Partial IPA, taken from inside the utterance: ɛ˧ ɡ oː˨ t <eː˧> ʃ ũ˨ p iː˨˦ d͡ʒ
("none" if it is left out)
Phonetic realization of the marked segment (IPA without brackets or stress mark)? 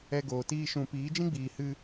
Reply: iː˧